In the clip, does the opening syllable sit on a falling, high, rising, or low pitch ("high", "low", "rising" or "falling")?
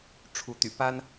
rising